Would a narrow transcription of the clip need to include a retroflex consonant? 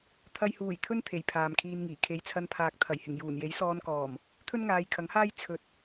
no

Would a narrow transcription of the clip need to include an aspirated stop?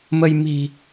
no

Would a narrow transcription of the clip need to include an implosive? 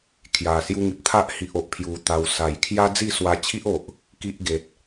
no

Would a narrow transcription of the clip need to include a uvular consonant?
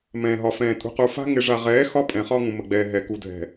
yes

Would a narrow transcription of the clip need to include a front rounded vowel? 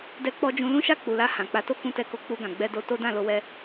no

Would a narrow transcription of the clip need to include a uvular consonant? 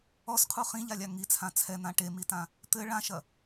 yes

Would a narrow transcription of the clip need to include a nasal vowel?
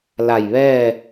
no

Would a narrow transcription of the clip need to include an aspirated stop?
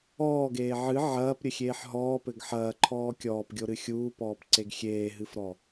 yes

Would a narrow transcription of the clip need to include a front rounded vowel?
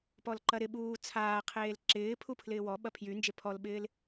yes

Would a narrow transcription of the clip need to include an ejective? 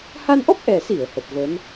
no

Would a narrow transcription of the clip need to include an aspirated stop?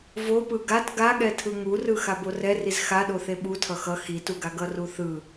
yes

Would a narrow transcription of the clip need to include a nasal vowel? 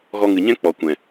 yes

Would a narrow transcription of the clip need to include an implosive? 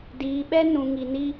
yes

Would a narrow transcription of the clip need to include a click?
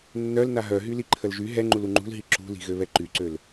yes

